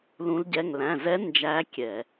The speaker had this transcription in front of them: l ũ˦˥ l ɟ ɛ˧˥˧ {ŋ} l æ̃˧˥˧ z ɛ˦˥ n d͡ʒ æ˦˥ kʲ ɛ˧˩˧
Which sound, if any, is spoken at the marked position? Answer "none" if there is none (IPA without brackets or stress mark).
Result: ŋ